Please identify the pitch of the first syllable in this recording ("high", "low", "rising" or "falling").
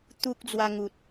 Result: high